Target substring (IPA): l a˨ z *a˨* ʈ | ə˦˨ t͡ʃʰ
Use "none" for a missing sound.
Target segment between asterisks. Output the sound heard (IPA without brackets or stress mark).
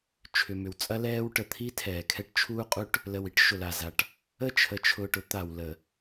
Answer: a˨